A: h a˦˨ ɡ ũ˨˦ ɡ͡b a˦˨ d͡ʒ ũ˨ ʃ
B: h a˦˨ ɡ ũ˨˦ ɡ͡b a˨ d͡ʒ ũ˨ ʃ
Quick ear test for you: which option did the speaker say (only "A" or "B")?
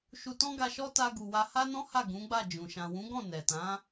A